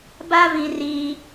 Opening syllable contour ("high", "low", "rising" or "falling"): high